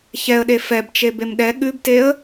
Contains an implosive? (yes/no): yes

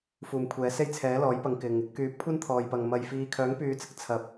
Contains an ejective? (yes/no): no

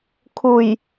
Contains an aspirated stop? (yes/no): yes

